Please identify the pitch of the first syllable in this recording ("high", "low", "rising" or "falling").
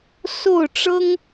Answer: falling